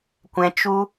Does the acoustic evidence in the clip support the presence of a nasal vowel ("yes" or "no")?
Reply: yes